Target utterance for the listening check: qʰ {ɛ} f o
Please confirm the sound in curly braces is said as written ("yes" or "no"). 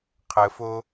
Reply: no